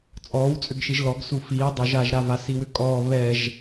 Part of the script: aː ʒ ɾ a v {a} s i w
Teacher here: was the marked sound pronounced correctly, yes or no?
yes